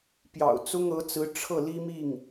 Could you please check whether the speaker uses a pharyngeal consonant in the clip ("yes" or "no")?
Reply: no